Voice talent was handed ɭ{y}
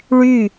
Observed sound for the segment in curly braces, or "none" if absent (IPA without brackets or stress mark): y